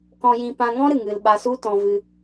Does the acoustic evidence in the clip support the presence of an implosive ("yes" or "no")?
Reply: yes